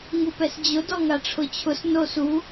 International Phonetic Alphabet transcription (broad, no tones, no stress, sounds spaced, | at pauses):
ŋ u p ɛ s d͡ʑ ʊ d ɔ ŋ a ʈ͡ʂʰ ʊ t͡ɕʰ ʊ s n o s u